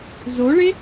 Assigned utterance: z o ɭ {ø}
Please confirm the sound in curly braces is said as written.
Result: no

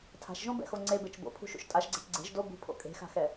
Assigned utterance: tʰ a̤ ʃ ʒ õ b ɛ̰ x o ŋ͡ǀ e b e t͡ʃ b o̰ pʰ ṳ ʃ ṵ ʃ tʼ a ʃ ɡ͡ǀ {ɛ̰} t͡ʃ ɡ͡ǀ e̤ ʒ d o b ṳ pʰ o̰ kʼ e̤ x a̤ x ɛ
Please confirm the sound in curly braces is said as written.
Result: no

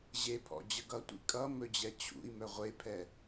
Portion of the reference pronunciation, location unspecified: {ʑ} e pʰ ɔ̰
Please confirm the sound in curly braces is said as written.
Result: yes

